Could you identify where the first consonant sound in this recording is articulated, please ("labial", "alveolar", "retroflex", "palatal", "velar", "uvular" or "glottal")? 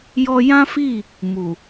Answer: palatal